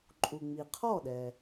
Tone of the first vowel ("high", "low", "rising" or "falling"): low